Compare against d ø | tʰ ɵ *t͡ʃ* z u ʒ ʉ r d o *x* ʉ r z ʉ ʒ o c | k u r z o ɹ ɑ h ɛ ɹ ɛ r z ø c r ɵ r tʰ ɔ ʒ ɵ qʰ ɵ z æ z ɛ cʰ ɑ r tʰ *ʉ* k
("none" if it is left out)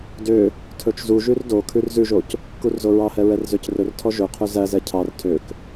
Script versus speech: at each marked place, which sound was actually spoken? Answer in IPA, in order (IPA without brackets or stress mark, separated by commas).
t͡ʃ, kʰ, ø